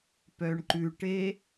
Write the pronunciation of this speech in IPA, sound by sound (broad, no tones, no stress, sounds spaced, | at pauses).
p œ ɳ ǃ ʉ ʈ e